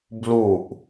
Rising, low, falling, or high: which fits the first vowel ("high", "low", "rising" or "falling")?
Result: falling